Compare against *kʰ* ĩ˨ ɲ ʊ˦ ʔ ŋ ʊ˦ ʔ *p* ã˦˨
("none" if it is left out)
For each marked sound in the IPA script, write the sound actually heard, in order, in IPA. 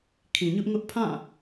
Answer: kʰ, pʰ

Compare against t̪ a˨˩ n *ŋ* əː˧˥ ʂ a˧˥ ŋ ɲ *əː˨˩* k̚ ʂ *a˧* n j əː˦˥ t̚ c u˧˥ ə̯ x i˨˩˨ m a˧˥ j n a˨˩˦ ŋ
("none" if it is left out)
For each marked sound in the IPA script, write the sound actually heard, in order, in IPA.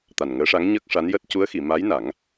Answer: ŋ, əː˦˥, a˧˥

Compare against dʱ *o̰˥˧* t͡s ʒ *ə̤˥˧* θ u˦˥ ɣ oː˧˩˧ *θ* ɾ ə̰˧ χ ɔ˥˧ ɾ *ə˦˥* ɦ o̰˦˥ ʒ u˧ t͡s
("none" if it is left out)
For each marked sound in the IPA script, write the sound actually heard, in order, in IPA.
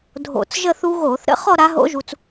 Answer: o̰˧˩˧, ə˥˧, θ, a˦˥

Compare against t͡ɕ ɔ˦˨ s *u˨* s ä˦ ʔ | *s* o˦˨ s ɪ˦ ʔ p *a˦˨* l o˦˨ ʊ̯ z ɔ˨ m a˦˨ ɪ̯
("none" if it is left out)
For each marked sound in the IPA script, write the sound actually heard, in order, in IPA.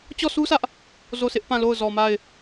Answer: u˦, z, ã˦˨

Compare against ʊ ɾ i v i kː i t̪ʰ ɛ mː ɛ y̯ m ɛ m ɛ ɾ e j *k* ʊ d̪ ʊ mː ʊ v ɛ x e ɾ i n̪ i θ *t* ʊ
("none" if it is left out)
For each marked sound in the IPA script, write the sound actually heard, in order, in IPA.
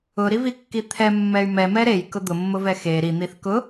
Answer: k, k

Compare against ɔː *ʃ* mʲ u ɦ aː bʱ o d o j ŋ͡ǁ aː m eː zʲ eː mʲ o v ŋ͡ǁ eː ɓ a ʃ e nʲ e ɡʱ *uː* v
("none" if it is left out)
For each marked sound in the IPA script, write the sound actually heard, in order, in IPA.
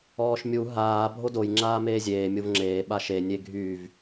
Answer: ʃ, yː

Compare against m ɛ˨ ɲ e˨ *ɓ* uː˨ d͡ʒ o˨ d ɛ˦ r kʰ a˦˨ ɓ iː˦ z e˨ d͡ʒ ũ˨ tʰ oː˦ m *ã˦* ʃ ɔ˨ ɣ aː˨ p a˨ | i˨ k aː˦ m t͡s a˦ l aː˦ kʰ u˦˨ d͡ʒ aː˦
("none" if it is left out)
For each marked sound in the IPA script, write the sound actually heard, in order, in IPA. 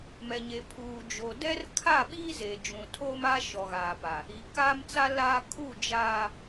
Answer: pʰ, a˦

